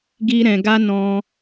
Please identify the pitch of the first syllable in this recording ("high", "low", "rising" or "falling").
high